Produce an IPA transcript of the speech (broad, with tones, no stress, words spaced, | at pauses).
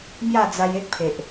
mja˥˧d͡za˧je˦k̚pʰe˨ʔ